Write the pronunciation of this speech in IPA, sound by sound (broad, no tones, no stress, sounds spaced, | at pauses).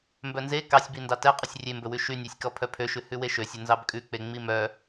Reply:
m b œ n z e k ɑ sʲ b i n d ɑ t ɛ qʼ ɵ sʲ rʲ e m b ɵ w ʉ ʃ y nʲ ɑ sʲ k ɔ pʰ œ pʰ ø ʃ ʉ h ʉ w e ʃ ø sʲ ɵ n z ɑ b kʼ ʉ k͡p e ŋ͡m i m œ